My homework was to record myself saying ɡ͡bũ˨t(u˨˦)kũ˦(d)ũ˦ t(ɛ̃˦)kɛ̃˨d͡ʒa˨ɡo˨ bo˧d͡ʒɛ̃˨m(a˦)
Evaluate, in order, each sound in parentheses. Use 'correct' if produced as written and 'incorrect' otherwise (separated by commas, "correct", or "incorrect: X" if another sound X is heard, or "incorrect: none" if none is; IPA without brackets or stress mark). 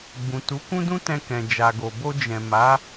correct, correct, incorrect: ɛ̃˧, incorrect: a˨˦